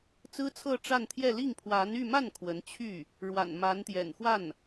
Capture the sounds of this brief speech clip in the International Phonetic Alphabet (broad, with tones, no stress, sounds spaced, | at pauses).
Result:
t͡s ɹ̩˥ t͡sʰ ɤ˥˧ ʈ͡ʂ a˥˧ n t̪ʰ j ɛ˥˧ l i˥˩ ŋ pʰ w a˧˥ n y˥˧ m a˥˩ n kʰ w ə˧˥ n t͡ɕʰ y˥˩ | ɻ w a̰˨˩ n m a˧˥ n t̪ j ɛ̰˨˩ n x w a˥˩ n